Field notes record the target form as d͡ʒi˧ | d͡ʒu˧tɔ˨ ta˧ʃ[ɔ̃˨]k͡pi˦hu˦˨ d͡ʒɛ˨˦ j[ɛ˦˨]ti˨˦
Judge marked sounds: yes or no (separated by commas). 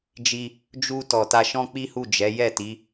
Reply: no, yes